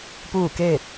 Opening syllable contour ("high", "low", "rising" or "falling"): falling